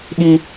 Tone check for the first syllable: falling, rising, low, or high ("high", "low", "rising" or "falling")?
high